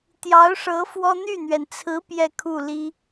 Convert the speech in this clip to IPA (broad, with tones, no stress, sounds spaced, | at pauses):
t̪ j ɑ˧˥ ʊ̯ ʂ ɤ˧˥ f w ɔ˥ n̪ y˥˩ n̪ ɥ ɛ˩ n t͡sʰ ɹ̩˧˥ p j ɛ˥˧ kʰ u˥˩ l i˥